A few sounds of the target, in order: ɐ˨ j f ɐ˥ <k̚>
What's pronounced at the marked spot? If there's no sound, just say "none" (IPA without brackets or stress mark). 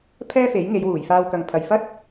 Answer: t̚